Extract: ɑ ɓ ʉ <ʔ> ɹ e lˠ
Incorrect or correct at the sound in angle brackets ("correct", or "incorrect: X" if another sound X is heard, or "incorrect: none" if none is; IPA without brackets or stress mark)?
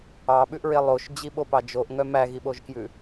correct